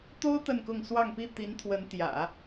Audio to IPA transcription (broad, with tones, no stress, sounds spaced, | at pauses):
t̪ o˥ ʊ̯ t̪ ə˥˧ n k ʊ˥˧ ŋ s w ɑ˥˧ ŋ p i˥˩ t̪ i˧˥ n t̪ʰ w ə˧˥ n t̪ j ä̰˨˩˦